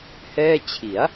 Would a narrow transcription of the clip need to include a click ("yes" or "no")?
no